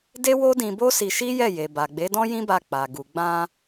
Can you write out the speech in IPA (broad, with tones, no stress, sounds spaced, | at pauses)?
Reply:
d e˦ w o˦ d ĩ˧ b o˦ s i˧ ʃ i˦ j ɛ˦˨ j e˨ b a˨ ɡ͡b e˨˦ d ɔ̃˦ j ĩ˦ b a˧ k͡p a˨ ɡ u˨ ɡ͡b ã˧